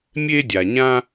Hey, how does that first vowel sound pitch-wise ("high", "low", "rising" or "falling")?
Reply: high